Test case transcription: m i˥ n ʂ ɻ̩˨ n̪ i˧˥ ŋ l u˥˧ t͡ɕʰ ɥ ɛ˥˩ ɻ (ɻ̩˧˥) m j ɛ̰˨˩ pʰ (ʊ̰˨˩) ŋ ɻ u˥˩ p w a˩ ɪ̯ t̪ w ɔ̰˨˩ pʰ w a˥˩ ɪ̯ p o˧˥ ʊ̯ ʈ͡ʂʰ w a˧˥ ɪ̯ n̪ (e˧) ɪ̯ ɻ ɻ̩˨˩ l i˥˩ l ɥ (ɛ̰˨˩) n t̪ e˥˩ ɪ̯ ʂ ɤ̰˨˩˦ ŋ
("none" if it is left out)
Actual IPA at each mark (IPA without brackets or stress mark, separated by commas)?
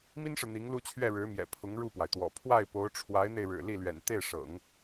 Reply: ɻ̩˧˥, ʊ˧˥, e˧, ɛ̰˨˩